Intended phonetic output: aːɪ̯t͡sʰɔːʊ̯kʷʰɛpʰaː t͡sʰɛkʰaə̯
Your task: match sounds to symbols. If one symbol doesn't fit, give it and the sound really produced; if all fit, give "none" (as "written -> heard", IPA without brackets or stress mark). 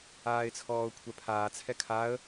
none